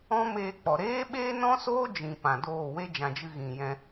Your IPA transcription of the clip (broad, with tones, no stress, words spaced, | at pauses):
ɔ̃˦meː˧k͡pɔ˨ ɾeː˦ɓeː˦ nɔ̃˦soː˦d͡ʒĩ˨ pã˨doː˦˨ we˦d͡ʒã˨d͡ʒɨ˧ ɣĩ˨jɛ̃˧